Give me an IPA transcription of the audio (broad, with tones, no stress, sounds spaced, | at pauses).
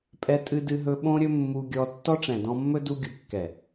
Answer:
pʼ ɛ˧ tʼ ɨ˧ d ɨ˧ ɦ ɵ˧ ɓ õ˧ ɾʲ ɵ˧ mː u˧ ɡʲ ɔ˧ tː ɔ˦ ʈ͡ʂ ɛ̃˨ d ɔ̃˧ mː ɵ˦ d u˧ ɡʲ u˨ kː ɛ˨